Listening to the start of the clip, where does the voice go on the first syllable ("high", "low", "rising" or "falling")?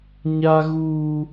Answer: high